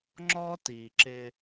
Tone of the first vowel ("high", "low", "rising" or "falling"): high